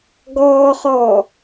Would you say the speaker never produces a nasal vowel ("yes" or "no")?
yes